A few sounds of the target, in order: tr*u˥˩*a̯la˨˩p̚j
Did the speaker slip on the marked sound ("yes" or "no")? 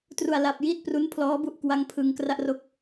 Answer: yes